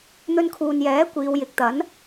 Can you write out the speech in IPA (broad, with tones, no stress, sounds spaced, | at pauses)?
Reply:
n̪ ɵ˧ n kʰ uː˨ n j ɛː˨˥ kʷ iː˨˧ w j ɪ˨˥ k̚ t̪ ɐ˨˥ n